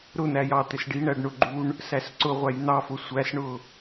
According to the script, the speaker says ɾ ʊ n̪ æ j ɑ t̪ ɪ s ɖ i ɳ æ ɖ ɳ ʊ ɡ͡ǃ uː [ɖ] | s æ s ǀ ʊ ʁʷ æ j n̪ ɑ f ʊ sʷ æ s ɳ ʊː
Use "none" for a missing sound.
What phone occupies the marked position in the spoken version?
ɳ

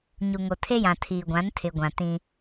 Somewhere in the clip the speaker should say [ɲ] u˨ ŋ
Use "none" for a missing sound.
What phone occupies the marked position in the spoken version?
ɲ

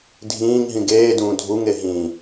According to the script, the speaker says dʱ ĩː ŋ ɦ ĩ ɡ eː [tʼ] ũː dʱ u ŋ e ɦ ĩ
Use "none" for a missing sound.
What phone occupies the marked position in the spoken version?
d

